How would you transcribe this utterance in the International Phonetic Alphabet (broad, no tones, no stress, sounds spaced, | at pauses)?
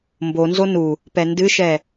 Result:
m b o n z o n u | p ɛ n d ɨ ʃ ɛ